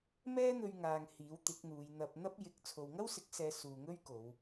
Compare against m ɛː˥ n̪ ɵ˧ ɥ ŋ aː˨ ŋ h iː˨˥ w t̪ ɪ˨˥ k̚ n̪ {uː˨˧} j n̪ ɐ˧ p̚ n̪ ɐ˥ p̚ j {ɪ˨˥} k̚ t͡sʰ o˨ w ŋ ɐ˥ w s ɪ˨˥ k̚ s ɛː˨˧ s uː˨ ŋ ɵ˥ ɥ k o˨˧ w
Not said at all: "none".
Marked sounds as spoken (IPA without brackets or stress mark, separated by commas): uː˨˧, ɪ˨˥